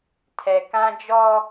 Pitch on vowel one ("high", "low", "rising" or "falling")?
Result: low